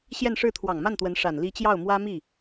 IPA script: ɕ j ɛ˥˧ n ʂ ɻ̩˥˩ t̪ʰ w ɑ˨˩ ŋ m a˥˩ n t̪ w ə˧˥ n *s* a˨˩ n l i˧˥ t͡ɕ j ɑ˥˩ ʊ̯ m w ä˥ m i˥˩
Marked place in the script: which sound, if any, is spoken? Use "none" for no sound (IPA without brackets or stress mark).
ʂ